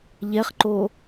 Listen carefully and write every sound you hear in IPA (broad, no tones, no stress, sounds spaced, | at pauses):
ʎ ɛ χ ǃ o